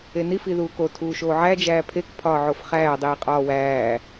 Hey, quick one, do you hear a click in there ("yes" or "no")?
no